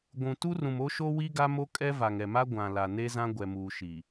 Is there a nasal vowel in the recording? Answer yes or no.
yes